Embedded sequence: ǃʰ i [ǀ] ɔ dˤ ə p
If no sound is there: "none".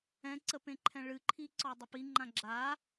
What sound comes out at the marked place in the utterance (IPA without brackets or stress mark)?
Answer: ǀ